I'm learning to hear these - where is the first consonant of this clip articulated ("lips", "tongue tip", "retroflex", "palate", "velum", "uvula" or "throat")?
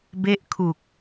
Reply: lips